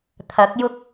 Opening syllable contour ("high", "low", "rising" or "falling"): rising